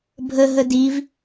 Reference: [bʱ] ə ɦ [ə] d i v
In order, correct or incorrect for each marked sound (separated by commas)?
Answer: correct, correct